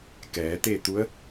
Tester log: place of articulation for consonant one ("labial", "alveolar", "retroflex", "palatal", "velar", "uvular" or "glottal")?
velar